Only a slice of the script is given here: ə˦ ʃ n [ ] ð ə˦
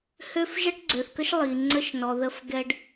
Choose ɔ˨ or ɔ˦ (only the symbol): ɔ˨